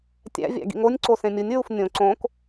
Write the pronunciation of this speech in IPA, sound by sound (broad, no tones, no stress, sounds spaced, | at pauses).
tʲ æ̰ vʲ æ̰ ɡ ḭ ŋ o nʲ ǀ o s ẽ mʲ u nʲ ɹ u f nʲ õ ǀ õ k